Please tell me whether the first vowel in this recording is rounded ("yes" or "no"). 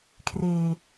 no